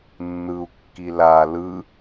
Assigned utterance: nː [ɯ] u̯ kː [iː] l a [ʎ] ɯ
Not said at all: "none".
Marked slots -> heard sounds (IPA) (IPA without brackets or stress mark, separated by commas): ɯ, i, l